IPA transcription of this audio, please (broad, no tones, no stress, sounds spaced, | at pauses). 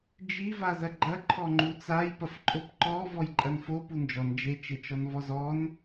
d͡ʒ i v a z ɐ ɡ͡ǃ ɐ ǃʰ ɔ ŋ͡ǃ u t͡s a j p ɐ f ǃʼ o p ǃ ɔ v ɔ j ǃʼ ɐ n f o p u n d͡ʒ ɔ n d͡ʒ e t͡ʃ e t͡ʃ ɔ n v ɔ z ɔ n